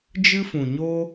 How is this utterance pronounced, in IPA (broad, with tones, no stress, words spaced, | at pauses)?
d͡ʒɨ˦fũ˨ɲo˦